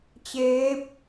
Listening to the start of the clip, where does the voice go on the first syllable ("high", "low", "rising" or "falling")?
rising